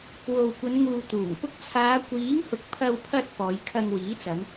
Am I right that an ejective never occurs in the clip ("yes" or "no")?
yes